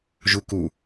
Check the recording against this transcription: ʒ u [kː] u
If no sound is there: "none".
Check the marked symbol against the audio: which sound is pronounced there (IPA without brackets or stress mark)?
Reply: k